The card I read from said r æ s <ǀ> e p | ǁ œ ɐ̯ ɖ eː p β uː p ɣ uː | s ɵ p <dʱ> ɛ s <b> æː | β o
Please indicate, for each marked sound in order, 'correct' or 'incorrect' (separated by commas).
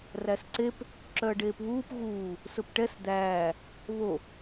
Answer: correct, incorrect, incorrect